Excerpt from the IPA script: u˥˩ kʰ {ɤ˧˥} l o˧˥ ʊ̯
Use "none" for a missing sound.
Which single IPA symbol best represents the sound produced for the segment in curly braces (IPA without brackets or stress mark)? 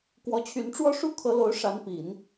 ɤ˧˥